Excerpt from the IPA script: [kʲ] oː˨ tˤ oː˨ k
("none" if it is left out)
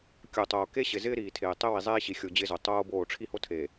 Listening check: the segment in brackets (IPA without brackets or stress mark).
kʲ